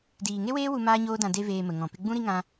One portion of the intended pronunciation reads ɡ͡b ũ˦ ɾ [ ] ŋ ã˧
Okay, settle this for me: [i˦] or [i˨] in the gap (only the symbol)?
i˦